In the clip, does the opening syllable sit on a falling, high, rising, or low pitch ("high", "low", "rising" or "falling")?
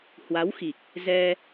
rising